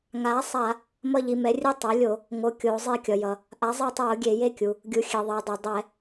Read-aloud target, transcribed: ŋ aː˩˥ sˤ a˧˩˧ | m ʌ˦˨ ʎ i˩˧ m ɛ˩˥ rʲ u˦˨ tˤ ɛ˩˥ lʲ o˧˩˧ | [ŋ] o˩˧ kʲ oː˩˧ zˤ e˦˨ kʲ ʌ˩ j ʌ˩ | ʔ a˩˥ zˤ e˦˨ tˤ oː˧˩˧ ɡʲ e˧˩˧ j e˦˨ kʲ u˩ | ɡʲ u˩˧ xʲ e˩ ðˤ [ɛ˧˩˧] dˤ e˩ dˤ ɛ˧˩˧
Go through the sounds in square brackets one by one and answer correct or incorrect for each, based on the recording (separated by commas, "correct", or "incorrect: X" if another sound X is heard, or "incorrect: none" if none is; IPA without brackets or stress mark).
correct, incorrect: ɛ˩˧